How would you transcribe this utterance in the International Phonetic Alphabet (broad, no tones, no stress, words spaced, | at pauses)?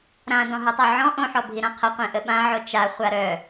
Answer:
ɾã dɔ̃ɦutˤœʕɔ̃ ʔõħɔbʱi ɾãqʰə qʷẽʔəɓãʕo t͡ʃa χʷaɾœ